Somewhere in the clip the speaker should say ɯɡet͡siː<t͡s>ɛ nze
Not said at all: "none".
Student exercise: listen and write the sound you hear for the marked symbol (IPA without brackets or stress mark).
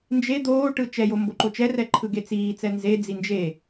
t͡s